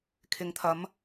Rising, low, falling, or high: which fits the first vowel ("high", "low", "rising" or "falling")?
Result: low